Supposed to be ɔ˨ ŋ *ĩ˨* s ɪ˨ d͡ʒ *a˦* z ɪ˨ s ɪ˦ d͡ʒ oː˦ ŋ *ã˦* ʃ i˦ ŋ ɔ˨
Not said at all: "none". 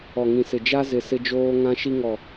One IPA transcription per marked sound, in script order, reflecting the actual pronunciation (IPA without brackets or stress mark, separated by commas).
ĩ˨, a˦, ã˦